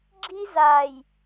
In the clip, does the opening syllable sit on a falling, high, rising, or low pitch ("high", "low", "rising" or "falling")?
high